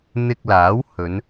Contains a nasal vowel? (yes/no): no